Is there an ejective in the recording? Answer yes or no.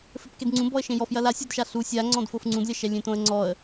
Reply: no